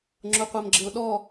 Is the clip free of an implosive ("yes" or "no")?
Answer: no